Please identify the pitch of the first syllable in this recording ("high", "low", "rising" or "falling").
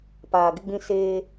low